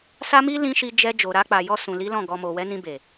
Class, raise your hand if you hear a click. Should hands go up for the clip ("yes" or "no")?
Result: no